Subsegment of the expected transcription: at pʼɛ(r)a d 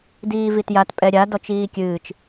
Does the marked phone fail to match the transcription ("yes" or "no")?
yes